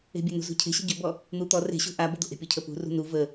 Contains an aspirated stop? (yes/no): yes